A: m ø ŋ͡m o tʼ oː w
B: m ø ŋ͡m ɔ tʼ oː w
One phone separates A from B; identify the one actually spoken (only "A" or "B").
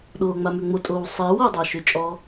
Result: A